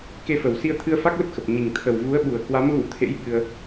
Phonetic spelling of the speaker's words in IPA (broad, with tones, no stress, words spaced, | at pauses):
ke˧fə˨˩w si˧ə̯t̪ʰɨ˧ə̯fa˦˥k̚ lə˦˥p̚xə˨˩p̚ ɲi˨˩ŋ t̪ʰə˨˩w vu˨˦ə̯ɓu˨˩ə̯ kwa˨˦m ɣṵ˧˥t̪ʰḛ˧˥j ɓɨ˧ə̯